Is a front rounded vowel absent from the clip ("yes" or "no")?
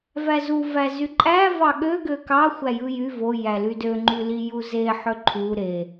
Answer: no